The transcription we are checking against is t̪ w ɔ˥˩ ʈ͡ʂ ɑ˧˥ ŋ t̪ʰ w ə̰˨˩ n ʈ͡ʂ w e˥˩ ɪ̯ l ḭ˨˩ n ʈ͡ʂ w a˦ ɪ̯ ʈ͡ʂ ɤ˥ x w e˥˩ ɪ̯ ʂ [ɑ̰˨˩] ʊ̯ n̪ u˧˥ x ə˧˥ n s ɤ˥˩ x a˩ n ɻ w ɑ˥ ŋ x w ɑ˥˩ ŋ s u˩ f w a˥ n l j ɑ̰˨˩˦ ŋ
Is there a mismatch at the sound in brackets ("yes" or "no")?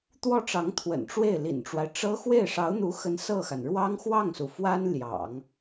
yes